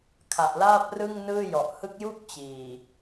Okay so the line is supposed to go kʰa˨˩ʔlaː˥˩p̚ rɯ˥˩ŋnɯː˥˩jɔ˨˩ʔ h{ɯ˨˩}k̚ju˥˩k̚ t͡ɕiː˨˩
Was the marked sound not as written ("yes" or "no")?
yes